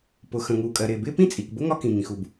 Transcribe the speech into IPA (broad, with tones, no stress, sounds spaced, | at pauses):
p ʊ˩ x ə̃˩ ŋ uː˩ kʼ ɜ˩ ɾ ɪː˩ b ɪː˥ p ĩ˥ t͡sʼ i˩ k b ʊ˥ ŋ ɒ˥ k ĩ˩ ŋ ĩ˩ x u˩ b